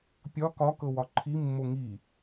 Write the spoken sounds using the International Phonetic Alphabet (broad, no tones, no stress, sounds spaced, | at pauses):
pʲ ɒ k ɒ k ɤ w ɒ ǃʰ i mː o ŋ i